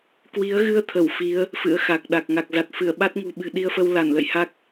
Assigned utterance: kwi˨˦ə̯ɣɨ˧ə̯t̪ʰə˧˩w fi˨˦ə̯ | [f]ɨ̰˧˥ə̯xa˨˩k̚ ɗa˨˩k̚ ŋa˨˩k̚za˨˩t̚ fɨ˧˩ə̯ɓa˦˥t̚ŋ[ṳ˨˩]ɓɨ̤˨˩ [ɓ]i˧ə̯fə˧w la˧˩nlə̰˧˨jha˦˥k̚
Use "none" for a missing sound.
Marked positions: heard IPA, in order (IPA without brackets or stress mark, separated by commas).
f, ṳ˨˩, ɗ